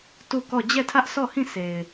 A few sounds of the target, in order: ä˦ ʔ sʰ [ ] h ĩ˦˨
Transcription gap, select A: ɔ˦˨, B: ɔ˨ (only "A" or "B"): A